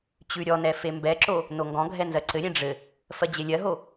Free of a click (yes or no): no